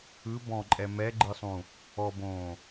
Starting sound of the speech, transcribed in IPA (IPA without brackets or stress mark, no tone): ɯ